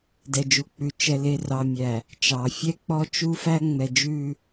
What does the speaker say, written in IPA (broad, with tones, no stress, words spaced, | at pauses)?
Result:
dɛ˨d͡ʒu˨ k͡pʉ˨ t͡ʃɛ˨ le˨rɑ˨mʲæ˨ | t͡ʃɑ˨fʲɛ˦k͡pɔ˦t͡ʃu˦ fæ˦ŋ͡mɛ˨d͡ʒʉ˦˨